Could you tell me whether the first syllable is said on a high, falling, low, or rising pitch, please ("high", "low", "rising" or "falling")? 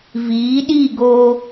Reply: rising